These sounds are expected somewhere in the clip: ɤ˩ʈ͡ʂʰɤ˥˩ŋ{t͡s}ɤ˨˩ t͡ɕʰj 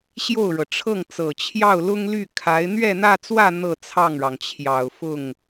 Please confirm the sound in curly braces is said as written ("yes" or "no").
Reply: yes